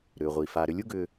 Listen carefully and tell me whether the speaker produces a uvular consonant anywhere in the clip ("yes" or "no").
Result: yes